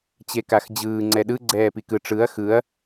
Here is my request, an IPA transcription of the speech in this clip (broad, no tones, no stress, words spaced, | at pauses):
t͡ɕekaxd͡ʑɯː ŋ͡ǀɛɗɯ ɡ͡ǀɛːpikɯ ʈ͡ʂɯɐ̯ xɯɐ̯